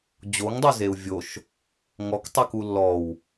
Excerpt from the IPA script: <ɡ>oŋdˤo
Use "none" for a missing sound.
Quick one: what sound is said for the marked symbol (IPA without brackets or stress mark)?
d͡ʑ